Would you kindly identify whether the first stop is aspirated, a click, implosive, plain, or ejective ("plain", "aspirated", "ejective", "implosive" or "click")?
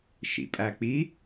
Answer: ejective